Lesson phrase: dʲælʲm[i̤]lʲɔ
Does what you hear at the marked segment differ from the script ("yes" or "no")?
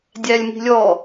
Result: no